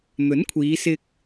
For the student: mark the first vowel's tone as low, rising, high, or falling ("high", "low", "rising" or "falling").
rising